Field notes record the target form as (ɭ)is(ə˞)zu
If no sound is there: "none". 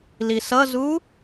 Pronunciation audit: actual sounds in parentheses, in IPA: l, ʌ

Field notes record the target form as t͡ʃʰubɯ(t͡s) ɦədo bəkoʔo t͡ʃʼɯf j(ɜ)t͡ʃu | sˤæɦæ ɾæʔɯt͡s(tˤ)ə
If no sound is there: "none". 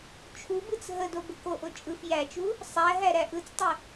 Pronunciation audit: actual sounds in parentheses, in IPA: t͡s, æ, tˤ

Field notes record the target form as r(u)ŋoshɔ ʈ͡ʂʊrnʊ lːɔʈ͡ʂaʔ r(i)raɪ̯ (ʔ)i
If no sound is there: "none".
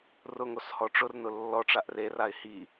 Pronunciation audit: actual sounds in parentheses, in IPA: ʊ, e, h

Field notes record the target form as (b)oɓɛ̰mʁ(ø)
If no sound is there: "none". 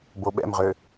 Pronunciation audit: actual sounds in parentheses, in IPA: b, ø

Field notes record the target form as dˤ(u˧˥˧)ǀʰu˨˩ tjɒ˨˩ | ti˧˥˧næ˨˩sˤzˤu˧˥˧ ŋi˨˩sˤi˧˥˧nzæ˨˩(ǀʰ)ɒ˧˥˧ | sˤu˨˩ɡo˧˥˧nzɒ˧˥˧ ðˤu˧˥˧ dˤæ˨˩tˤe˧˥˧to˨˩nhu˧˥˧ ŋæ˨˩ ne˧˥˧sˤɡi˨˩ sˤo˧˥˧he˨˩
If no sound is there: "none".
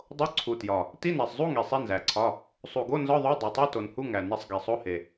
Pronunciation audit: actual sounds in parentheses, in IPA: o˧˥˧, ǀʰ

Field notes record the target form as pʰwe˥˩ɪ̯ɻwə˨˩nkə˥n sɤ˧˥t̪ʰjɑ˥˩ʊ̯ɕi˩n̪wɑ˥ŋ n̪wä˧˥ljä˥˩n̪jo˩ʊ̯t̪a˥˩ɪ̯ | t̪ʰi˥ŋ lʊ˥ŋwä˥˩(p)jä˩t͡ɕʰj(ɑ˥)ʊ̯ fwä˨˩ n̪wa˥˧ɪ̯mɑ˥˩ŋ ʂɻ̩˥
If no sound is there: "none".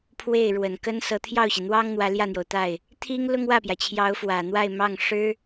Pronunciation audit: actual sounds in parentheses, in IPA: p, ɑ˧˥

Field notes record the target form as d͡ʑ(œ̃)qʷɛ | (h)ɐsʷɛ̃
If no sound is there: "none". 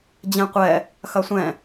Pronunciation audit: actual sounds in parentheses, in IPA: ɛ̃, x

